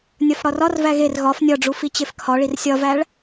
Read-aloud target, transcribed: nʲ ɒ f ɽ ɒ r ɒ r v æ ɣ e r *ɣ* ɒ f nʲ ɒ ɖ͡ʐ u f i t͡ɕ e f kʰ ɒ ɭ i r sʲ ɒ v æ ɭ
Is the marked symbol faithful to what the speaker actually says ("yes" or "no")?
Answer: yes